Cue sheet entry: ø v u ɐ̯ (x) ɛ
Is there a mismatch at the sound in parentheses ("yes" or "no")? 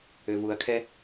yes